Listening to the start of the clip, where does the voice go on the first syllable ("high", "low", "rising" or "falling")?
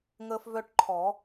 high